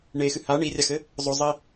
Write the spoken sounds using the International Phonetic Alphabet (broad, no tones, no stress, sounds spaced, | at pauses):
ɳ e x ɨ h a ɳ i rʲ a x ɘ | zˤ o zˤ i